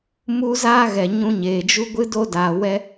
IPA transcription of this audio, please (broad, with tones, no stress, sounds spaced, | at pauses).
m u˦ z aː˦ ɣ ɛ˨ ɲ ũ˧ ɲ eː˨ d͡ʒ u˦ ɡʷ ɨ˦ d o˦ d aː˨ w ɛ˦